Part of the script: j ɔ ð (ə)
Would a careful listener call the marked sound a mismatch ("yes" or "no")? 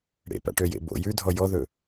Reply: yes